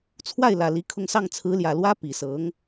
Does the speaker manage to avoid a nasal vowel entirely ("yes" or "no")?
yes